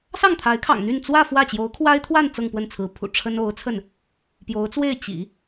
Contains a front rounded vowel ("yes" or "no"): yes